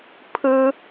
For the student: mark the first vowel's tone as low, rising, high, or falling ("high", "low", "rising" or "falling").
high